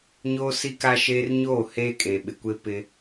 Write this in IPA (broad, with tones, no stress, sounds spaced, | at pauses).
ɲ oː˦ s i˦ k a˦ ʃ eː˦ r ɲ oː˦˨ h eː˦ kʼ e˨ ɓ ɪ˨ kʷ e˦ p ɪ˦